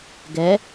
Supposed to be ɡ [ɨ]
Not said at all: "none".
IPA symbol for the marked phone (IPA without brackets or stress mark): ɛ